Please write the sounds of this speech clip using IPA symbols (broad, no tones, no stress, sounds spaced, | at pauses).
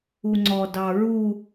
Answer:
u ŋ͡ǀ ɔ d ɑ ɹ u